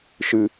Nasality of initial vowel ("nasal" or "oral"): oral